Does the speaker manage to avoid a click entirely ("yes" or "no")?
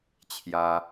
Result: yes